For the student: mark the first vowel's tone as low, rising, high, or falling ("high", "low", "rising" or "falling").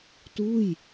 falling